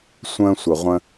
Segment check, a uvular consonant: present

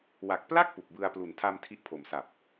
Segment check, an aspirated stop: present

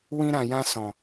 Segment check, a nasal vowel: present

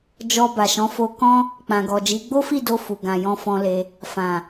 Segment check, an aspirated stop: absent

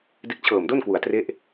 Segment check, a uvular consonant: absent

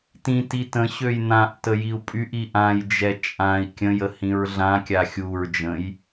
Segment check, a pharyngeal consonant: absent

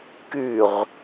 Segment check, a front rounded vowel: present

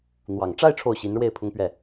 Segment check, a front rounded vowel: absent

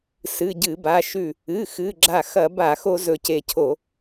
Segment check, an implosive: absent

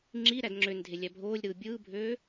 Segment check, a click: present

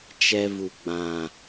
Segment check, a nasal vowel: present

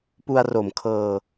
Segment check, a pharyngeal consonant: absent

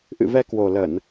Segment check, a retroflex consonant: absent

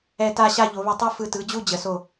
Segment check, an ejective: absent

